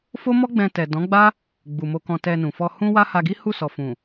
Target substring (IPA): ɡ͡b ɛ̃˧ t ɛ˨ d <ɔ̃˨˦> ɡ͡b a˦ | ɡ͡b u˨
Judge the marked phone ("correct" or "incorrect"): correct